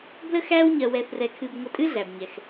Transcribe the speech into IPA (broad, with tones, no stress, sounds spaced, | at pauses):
b l ə˥ x æ˥ w ɲ ɜ˧ w ɛ˧ θ r ɛ˧ kʰ ɨ˧ b ŋʷ ə˧ tʼ ɨ˥ ɮ æ˩ b ɲ ɛ˩ x